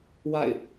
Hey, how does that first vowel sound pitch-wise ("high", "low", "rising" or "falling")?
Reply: falling